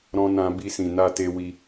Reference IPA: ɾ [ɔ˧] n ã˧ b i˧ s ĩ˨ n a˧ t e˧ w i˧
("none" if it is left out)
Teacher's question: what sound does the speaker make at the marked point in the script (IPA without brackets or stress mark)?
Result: ɔ̃˧